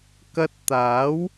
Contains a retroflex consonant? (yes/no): no